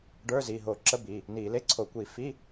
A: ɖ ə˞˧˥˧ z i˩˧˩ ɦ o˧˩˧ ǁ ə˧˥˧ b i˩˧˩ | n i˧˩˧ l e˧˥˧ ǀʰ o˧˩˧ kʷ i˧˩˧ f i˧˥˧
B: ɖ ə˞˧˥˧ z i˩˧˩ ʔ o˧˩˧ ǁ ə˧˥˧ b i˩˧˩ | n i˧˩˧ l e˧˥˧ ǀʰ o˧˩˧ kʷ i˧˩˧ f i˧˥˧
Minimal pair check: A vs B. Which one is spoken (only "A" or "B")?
A